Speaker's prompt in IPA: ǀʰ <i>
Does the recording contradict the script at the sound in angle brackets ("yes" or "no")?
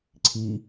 no